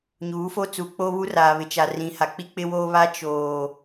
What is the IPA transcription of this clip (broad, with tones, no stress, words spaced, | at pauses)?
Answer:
ɲuː˨˦fo˦ t͡su˨k͡po˦βu˦ raː˨βɪ˨t͡ʃa˨ rĩ˨ha˨k͡pi˦ k͡pɪ˦woː˦βa˦ t͡ʃoː˨